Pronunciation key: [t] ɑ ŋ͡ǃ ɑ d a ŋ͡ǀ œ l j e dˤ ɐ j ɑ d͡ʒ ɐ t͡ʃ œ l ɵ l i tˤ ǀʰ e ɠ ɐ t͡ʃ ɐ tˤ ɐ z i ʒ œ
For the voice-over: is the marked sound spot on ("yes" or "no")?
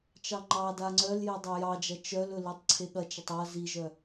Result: no